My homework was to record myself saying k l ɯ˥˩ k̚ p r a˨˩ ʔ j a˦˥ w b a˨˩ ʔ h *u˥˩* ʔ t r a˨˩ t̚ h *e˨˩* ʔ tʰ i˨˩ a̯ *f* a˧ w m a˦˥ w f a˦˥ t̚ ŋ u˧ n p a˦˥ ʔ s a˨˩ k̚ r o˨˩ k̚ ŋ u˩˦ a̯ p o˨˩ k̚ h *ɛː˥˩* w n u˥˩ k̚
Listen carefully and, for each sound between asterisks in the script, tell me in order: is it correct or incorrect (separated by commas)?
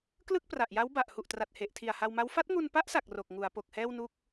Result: incorrect, correct, incorrect, correct